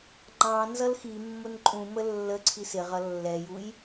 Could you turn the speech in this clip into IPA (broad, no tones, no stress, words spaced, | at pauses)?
ŋ͡ǃɑ̃ nzʌlximːʊn ǃʼũmə lːəǀʰis ɪʁʌ lːɛjuj